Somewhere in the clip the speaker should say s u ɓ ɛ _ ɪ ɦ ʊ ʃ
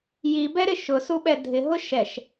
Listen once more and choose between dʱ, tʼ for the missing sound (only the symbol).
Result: dʱ